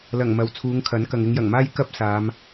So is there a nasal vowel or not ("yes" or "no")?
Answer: no